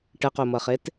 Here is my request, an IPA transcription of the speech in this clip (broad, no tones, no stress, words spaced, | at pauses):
ʈəqomʌχet